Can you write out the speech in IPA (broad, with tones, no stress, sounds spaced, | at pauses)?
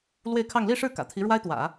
l w e˥˧ ɪ̯ kʰ ɑ˥˧ ŋ l i˥˧ ʂ ɻ̩˥˩ k ä̰˨˩ t̪ʰ i˧˥ ɻ w a˥ ɪ̯ t̪ w ä̰˨˩˦